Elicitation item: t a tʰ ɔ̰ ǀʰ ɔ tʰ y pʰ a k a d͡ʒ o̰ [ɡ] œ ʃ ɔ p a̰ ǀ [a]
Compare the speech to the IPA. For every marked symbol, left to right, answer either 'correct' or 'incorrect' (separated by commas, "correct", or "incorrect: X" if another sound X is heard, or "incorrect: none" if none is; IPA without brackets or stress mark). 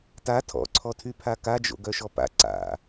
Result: correct, incorrect: a̰